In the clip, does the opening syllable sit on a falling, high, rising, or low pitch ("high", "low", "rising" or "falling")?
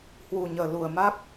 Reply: low